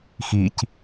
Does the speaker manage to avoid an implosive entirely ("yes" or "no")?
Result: yes